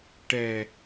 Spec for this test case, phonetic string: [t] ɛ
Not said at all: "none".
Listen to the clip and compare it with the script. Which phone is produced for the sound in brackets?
ʈ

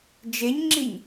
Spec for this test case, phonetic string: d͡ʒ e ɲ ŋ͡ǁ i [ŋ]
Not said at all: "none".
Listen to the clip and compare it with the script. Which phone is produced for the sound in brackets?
ɲ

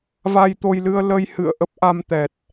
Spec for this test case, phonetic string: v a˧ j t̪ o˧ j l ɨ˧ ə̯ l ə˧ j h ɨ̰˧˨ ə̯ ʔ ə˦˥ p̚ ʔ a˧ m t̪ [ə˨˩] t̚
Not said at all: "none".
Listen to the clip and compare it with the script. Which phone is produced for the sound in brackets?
ɛ˨˩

